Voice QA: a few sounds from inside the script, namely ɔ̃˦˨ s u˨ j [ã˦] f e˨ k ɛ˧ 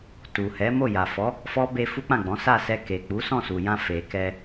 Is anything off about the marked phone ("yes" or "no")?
yes